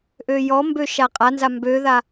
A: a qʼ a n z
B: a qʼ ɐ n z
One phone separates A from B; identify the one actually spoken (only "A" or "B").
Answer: A